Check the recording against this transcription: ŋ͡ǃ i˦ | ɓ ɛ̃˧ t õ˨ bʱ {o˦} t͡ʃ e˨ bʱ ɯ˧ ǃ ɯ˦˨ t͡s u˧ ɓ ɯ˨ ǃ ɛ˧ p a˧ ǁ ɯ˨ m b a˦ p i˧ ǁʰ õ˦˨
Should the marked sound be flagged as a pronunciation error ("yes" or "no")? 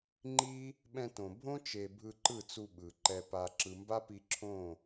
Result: yes